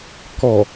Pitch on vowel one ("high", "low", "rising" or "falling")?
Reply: low